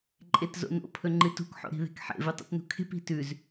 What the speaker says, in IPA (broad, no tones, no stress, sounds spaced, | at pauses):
ǃʼ e t z o̰ n o̰ pʰ ɵ ŋ͡ǃ ɨ t ṳ k ħ o̰ ɾ i̤ ð e̤ k ħ ḛ v ɨ tˤ ḭ t n ṳ kʰ e̤ p i̤ t ʉ z